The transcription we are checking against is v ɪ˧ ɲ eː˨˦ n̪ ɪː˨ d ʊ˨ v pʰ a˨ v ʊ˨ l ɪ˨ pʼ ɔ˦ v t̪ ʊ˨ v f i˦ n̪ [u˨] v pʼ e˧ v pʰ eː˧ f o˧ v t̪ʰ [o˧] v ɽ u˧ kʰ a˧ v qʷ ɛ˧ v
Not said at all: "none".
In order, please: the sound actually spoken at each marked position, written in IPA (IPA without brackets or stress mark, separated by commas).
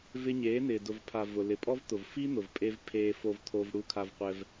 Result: ʊ˨, o˧